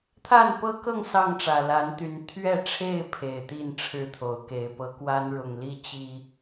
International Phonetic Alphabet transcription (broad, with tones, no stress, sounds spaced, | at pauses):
t̪ʰ a˥˨ n p ɤ˦ k ɤ˥˨ ŋ s ɑ˥˨ ŋ ʈ͡ʂ ä˨˩ l a˨˦ n t̪ y˨˦ n t̪ʰ ɥ ɛ˥˨ ʈ͡ʂʰ e˥˨ ɪ̯ pʰ e˨˩ ɪ̯ t̪ i˥˨ n ʈ͡ʂʰ ɻ̩˥˨ t̪ʰ o˨˦ ʊ̯ k e˨˦ ɪ̯ p ɤ˨˦ k w a˦ n ɻ ʊ˨˩ ŋ l i˥˨ t͡ɕ i˨˩